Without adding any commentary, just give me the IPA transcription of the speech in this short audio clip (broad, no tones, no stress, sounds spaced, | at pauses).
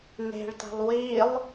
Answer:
n e̤ ɭ t a̤ lˠ w i lˠ